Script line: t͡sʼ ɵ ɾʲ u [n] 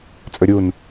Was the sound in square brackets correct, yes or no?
yes